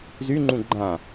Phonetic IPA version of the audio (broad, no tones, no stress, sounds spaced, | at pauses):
z y ŋ͡ǃ ũ ɡ͡ǃ ã